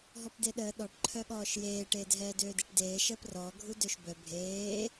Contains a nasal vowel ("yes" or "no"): no